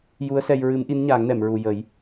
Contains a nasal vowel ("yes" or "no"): no